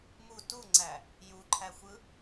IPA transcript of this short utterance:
mu tuŋ͡ǀæ | juǃʰæxʷɯ

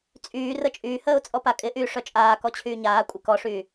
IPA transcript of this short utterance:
t͡sʼyː rət͡ʃʼyːhəːʊ̯ t͡sʼɔpakʼɪʔyː ʂœt͡ʃʼaːkɔ t͡ɕʰyːɲaːkʷʼɪ kɔʂyː

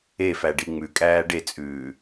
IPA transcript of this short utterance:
efæ ɖiŋ͡mʉkʼæː ɖet͡sʼʉː

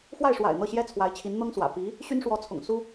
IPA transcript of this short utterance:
xwa˥˩ɪ̯ʂwa̰˨˩ɪ̯ n̪ɤ˥˩ɕjɛ˥t͡sʰwa˧˥ɪ̯t͡ɕʰi˧˥n n̪ɤ˥ŋswä̰˨˩ pi˧˥ | ɕy˥nʂwɔ˧˥t͡sʰʊ̰˨˩ŋ su˥

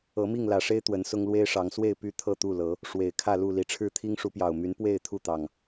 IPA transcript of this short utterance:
ɤ˨˦mi˥˨ŋlä˨˩ʂe˦ɪ̯ t̪wə˨˦nsʊ˦ŋ lwe˦ɪ̯ʂɑ˨˦ŋ swe˥˨ɪ̯ py˥˨ t̪ʰɤ˥˨t̪u˥˨lɤ˨˦ | ʂwe˨˩ɪ̯ kʰä˥˨lu˥˨ li˨˦ʈ͡ʂʰɻ̩˥˨ t̪ʰi˦ŋʂu˨˦pjɑ˨˩ʊ̯ my˨˦npwe˥˨ɪ̯ t̪ʰu˥˨t̪ɑ˨˩ŋ

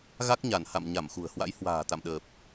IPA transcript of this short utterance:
ɣa˦˥k̚ɲa˧˩n ha̰˧˨m ɲa˧˩mxṳ˨˩ə̯hwa̰˧˥j hwa̤ː˨˩t̪a̰˧˨mɗəː˨˩p̚

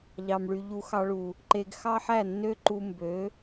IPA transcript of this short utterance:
ʎɑ˨mɭy˨ ʎu˧xɑ˧ɭu˨ | ǃe˧ɡ xɑ˦ħæ˦˨nːø˦ ǃu˧mbø˨˦

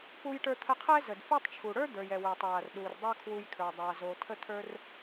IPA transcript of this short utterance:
pu˧jʈə˞˧t̪ʰə˧qʰɛ˥ zə˩dfe˥tˤt͡ʃʰu˩ ɽə˞˥d̪ə˞˩jɛ˩ we˩tˤwa˩rɗu˩r dˤa˥kʰwu˧jkʰə˞˩ dˤa˧zo˧ tʰə˥t̪ʰə˞˥r

